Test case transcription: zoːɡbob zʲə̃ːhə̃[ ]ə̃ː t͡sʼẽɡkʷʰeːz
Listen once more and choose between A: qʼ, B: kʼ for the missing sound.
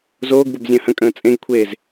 B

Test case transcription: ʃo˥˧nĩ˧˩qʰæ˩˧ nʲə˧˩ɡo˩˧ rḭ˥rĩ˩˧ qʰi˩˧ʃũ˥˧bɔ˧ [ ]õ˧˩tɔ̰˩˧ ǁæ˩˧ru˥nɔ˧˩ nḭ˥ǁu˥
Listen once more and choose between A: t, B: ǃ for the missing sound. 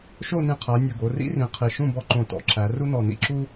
B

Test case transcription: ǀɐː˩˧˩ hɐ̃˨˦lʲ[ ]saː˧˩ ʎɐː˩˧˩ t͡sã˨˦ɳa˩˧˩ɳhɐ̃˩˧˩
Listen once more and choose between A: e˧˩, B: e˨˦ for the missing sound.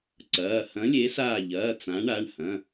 B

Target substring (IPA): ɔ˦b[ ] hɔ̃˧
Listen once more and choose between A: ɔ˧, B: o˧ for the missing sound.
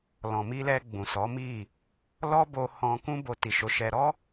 B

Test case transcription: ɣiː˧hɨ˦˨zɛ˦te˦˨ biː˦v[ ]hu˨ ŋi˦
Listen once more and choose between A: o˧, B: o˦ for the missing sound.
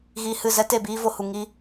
A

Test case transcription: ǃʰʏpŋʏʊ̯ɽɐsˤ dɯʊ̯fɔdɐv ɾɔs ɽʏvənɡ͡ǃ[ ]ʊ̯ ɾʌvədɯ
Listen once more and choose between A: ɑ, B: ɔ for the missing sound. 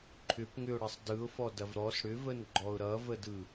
B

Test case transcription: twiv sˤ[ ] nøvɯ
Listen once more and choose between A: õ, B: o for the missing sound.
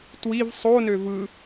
B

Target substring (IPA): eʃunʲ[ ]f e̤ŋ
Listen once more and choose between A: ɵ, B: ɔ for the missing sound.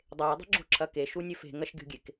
A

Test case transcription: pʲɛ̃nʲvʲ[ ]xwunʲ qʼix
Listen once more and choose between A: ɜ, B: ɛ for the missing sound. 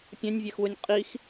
B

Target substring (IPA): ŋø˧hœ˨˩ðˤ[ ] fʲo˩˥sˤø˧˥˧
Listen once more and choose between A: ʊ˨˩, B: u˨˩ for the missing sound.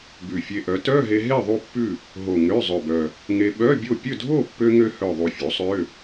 B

